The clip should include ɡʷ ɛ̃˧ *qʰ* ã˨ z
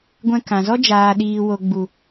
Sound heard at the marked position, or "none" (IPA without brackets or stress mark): k